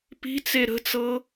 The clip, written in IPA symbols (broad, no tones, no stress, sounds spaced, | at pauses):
p i̤ t͡s e ɾ ə̤ t͡s ɤ